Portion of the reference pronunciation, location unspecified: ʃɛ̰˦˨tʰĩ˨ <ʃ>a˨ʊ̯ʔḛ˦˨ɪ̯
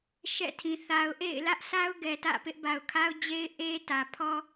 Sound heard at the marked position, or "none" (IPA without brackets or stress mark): θ